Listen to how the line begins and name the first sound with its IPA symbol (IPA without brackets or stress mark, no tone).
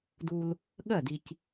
d